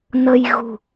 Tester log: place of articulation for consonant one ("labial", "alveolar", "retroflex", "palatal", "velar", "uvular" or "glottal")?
alveolar